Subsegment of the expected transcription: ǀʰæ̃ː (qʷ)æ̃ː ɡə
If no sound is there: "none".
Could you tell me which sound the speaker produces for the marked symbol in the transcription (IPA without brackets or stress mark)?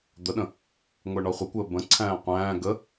qʷ